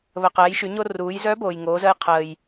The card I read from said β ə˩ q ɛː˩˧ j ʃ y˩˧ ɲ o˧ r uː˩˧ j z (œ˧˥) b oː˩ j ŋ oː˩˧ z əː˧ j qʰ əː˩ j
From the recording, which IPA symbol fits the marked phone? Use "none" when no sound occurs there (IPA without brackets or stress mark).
œ˧˥